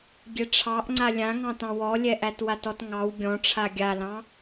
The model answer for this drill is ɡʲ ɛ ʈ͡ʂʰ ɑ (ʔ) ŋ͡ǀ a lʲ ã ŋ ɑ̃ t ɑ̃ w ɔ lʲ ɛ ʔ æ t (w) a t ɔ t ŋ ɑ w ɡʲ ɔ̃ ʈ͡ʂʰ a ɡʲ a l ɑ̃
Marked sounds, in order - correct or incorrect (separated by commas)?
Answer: correct, correct